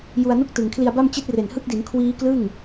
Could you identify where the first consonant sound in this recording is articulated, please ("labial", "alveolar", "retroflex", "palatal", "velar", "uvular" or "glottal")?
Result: palatal